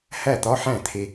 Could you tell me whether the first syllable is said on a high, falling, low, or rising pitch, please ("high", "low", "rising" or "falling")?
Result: falling